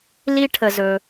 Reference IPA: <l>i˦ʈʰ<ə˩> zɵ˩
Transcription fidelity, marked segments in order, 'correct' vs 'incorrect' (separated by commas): correct, correct